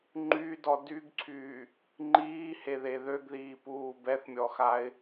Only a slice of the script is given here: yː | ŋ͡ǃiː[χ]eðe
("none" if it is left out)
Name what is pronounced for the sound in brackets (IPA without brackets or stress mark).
h